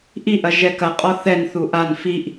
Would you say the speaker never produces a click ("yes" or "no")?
yes